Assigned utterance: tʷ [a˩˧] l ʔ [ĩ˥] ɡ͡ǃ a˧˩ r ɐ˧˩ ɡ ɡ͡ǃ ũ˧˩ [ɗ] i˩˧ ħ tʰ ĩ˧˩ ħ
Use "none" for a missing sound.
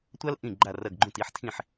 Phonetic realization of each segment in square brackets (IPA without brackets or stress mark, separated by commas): a˥, ĩ˧˩, t